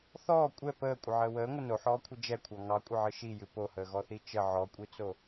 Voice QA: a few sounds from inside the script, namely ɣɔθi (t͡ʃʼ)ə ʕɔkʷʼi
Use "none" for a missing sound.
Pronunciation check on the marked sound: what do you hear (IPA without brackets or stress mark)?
t͡ʃ